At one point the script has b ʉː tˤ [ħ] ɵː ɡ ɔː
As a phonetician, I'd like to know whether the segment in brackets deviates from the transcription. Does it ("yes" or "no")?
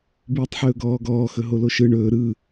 no